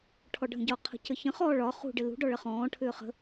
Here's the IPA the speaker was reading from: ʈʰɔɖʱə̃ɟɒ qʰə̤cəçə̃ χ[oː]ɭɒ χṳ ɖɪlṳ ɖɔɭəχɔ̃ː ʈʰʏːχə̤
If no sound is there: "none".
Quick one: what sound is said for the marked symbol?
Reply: ɔː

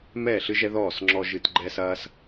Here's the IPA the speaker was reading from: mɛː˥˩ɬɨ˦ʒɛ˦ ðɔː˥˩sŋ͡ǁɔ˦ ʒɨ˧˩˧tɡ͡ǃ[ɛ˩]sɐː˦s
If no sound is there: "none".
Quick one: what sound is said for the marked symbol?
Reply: ɛ˦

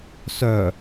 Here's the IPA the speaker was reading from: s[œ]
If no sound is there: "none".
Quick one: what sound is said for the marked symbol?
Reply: œ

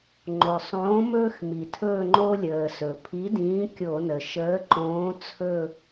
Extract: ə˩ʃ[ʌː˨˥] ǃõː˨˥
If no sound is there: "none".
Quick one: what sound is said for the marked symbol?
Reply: əː˨˥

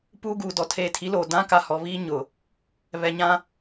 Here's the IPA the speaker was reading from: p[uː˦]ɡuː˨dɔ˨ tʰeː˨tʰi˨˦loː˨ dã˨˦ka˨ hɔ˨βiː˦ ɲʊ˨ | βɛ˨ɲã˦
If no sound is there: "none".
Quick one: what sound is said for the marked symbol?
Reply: uː˦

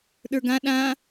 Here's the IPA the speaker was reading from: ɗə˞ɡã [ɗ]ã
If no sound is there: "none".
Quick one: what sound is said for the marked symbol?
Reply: ɗ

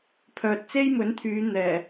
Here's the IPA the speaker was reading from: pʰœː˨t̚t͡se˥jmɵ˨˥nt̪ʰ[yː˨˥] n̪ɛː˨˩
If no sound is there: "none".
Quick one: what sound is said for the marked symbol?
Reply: yː˨˧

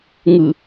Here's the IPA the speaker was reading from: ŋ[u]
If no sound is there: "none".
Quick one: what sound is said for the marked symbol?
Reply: ɯ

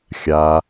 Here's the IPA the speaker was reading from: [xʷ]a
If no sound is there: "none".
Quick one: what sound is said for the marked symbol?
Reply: xʲ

